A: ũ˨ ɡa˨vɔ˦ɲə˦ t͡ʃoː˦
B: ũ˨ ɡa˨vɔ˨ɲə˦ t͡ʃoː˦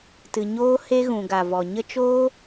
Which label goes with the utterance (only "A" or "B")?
B